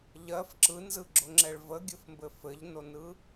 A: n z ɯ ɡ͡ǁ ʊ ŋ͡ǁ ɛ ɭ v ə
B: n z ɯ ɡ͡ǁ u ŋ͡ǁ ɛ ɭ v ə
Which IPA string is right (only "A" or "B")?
A